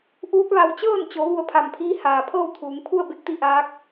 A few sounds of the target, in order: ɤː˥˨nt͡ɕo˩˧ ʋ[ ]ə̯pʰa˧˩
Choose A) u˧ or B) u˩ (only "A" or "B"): A